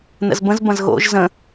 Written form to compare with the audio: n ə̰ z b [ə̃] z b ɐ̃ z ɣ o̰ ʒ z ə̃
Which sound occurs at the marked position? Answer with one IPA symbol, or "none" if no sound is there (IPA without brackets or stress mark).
ə̃